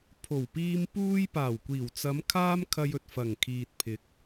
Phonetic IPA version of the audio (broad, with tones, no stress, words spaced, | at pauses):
pʰo˨˩wpiː˧m puː˧jpaː˨˩wkʷiː˨˩wt͡sɐ˨˧m kʰaː˥mkʰɐ˧jɵ˨t̚ fɐ˨˩ŋkʰiː˨t̚pʰɪ˨˥k̚